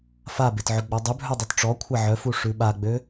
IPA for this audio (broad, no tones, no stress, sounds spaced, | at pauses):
f a b e t ʕ ø ɡ͡b ɔ dˤ ʉ bʱ œ dˤ ø t ʈ͡ʂ ɔ kʷʰ a ʕ œ f u ʂ ʉ ɓ a ɡ͡b ø